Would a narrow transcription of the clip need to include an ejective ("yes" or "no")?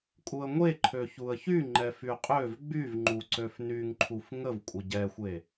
yes